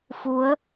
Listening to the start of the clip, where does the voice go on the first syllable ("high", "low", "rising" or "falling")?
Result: rising